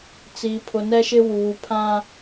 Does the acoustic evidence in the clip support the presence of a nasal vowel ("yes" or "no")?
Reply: yes